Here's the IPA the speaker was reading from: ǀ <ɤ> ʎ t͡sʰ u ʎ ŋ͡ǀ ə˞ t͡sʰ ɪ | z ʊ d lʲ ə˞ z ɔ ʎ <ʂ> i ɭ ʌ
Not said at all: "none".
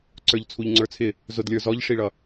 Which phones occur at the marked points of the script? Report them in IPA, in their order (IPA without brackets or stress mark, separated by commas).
ə˞, ʂ